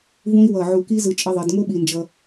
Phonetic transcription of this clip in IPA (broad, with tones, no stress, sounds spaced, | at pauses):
v ũ˥ i̯ w ʌ˧˩ ʕ u˧˩ k i˥ z ɯ˧ t͡ʃʼ e˧ ðˤ ɛ˩˧ d ŋ o˥ ɓ i˧ n d͡ʒ ʌ˧